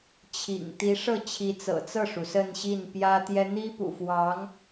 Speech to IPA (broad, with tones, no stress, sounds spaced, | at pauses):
t͡ɕʰ ḭ˨˩ ŋ t̪ i˧˥ ʂ ɤ˥˩ t͡ɕʰ i˧˥ t͡s ɤ̰˨˩ t͡s ɤ˥˩ ʂ u˩ s ə˥˧ n ɕ i˥˩ n p j ä˥ t̪ j ɛ˥ n̪ i˥ p ṵ˨˩ f w ɑ˧˥ ŋ